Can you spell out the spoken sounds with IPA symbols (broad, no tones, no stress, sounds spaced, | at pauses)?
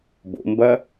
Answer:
b o̰ m b ɐ